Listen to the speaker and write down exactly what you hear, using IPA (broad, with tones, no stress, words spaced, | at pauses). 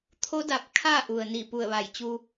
t̪ʰo˧˥da˧˩p̚ kʰa˥˨ ʔu˩ə̯ni˧˩ pu˧˩ə̯ʋa˧˩jt͡ɕu˧